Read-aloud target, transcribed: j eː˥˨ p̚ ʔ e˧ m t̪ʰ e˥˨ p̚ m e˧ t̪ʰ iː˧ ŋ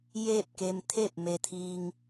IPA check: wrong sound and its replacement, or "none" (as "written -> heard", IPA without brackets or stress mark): ʔ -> k